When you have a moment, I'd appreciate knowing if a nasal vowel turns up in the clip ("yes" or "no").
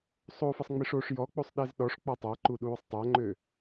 no